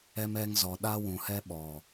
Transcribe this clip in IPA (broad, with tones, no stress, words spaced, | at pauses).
ɛ˦mɛ˦ŋzɔ˨ ɗa˦wũ˨ hɛ˦ɓɔ˨